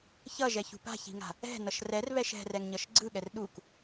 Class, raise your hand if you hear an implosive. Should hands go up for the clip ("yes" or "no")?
yes